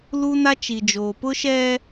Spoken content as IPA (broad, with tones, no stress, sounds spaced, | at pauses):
l u˦ n a˦ t͡ʃ i˨ d͡ʒ oː˨ p ʊ˦ ʃ ɛ˦